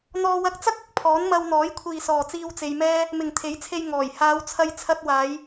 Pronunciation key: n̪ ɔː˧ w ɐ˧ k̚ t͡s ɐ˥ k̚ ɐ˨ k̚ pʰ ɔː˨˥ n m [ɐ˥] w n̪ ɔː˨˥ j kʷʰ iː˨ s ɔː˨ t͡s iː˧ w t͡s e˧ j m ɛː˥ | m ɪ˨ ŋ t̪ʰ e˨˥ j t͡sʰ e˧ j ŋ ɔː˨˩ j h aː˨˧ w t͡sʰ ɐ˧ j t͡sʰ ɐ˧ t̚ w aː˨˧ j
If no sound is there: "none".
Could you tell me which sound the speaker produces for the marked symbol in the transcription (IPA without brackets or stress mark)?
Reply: ɐ˧